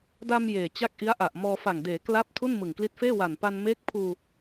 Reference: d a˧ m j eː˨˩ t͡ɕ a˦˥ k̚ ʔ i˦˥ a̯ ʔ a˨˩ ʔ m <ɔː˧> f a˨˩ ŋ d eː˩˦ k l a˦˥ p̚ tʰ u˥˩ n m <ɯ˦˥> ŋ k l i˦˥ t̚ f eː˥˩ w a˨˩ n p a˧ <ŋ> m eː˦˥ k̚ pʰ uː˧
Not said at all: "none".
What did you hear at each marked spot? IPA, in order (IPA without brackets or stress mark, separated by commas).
ɔː˧, ɯ˨˩, n